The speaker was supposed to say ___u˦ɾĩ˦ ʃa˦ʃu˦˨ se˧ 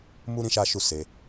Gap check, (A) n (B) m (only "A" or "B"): B